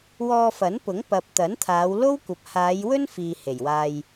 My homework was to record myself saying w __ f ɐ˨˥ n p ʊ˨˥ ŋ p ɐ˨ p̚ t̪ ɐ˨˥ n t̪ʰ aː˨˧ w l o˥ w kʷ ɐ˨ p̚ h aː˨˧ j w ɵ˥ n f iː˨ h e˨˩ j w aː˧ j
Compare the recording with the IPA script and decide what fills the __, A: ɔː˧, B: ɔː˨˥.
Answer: A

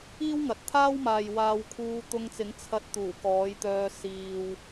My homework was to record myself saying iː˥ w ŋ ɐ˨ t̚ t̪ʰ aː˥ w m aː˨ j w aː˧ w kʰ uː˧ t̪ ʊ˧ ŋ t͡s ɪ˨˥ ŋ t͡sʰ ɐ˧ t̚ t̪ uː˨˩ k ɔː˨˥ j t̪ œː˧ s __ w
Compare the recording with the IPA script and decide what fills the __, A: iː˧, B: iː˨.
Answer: B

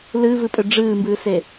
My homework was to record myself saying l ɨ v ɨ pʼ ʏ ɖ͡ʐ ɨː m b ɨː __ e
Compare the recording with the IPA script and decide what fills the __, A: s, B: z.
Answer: A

